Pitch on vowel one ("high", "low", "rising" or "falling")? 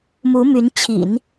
rising